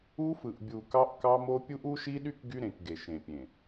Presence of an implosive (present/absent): present